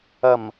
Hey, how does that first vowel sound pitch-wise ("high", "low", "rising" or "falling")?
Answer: low